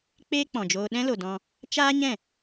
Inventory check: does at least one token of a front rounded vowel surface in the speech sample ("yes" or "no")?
no